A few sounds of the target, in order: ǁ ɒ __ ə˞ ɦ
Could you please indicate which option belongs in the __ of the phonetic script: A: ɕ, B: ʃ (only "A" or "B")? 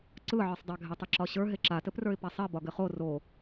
A